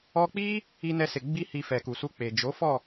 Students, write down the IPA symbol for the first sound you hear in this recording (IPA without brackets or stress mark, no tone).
ɔ